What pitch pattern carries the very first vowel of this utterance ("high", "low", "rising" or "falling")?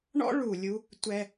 high